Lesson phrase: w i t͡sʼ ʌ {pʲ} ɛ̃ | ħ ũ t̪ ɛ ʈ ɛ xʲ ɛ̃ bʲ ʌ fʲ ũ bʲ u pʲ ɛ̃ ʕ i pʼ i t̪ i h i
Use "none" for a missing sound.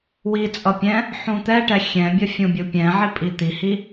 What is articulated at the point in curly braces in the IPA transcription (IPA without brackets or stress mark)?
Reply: pʲ